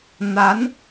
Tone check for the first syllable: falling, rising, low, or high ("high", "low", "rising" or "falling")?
rising